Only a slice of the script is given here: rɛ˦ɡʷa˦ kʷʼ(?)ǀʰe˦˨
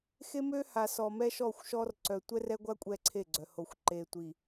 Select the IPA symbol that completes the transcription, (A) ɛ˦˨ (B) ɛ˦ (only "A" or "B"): B